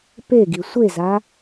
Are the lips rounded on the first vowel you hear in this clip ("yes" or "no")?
no